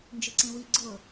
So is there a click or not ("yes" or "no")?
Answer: yes